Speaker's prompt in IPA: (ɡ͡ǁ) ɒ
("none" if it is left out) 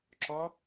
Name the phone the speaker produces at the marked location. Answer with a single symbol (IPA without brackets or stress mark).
ǁ